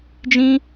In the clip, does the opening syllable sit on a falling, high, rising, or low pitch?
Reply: high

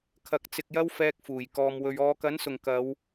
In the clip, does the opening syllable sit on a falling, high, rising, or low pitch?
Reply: low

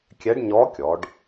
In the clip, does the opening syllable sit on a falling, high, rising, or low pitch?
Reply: rising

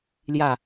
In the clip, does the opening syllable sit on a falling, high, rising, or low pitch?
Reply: falling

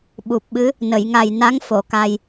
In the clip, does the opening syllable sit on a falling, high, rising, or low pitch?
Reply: low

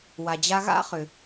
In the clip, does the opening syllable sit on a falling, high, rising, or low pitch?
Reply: low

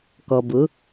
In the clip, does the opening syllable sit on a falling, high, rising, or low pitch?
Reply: low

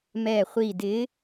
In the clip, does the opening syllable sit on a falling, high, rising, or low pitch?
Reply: low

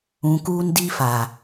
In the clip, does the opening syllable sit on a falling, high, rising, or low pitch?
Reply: low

